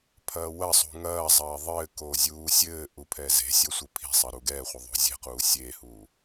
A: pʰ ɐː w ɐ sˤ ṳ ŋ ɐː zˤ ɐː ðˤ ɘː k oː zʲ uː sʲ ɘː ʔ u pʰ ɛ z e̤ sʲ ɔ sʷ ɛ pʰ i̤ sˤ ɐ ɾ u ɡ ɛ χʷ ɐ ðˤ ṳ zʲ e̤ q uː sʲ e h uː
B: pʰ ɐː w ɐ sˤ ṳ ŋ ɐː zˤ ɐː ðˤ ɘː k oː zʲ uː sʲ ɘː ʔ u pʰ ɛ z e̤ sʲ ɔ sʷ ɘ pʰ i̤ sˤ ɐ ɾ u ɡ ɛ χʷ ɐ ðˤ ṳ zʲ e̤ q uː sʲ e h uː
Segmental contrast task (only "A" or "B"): B